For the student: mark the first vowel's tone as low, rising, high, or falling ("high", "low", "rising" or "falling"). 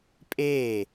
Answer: falling